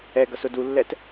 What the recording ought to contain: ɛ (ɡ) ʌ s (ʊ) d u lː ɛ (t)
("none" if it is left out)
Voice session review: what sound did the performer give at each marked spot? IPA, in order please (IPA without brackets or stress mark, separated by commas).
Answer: ɡ, ʊ, t